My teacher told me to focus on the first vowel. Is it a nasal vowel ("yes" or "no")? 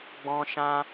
yes